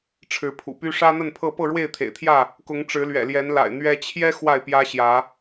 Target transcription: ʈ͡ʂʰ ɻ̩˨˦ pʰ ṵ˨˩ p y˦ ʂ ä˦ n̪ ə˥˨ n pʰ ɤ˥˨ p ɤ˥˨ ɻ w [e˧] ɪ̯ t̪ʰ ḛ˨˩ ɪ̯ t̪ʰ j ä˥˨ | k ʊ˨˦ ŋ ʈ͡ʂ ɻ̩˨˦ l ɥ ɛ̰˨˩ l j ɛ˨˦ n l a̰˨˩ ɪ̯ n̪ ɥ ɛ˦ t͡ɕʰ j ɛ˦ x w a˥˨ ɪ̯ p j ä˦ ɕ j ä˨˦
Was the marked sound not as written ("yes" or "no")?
yes